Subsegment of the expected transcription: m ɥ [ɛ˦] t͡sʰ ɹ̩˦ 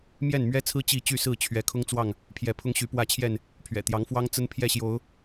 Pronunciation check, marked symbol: correct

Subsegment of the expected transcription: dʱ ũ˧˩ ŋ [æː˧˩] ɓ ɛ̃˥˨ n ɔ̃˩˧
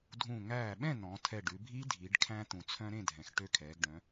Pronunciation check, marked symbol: correct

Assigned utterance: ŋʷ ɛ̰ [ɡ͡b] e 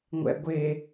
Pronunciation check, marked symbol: incorrect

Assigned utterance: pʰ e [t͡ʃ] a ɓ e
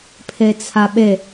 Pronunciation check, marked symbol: incorrect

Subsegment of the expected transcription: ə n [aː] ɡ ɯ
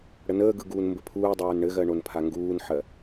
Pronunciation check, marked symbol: incorrect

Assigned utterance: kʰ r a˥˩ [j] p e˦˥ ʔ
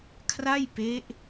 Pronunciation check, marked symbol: correct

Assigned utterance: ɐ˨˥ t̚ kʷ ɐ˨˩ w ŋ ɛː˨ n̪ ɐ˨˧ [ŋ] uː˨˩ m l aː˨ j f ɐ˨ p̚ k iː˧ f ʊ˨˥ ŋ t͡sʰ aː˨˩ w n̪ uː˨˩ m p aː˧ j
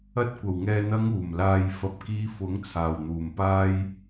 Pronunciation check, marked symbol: correct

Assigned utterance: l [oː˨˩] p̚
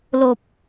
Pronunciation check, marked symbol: correct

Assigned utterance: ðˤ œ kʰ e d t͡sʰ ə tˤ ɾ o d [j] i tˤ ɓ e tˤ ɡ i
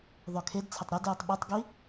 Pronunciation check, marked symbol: correct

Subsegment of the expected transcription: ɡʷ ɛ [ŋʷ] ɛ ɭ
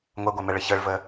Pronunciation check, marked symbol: incorrect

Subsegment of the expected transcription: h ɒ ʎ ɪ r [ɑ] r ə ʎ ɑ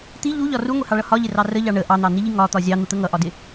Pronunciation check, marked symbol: correct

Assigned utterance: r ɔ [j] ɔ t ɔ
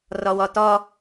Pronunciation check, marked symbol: incorrect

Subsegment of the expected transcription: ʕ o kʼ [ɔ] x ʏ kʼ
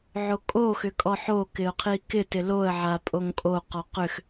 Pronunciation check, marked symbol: incorrect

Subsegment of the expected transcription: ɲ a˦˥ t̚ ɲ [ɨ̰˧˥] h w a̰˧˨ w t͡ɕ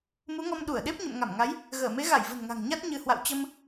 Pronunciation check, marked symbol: incorrect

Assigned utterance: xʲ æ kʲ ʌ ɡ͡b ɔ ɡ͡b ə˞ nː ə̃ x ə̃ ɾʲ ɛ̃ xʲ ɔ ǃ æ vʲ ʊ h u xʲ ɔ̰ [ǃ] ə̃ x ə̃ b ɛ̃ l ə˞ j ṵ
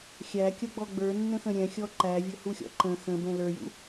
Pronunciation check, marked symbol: correct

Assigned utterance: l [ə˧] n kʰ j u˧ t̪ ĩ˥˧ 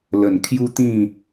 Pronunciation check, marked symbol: incorrect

